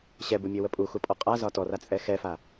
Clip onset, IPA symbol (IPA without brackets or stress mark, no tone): ɕ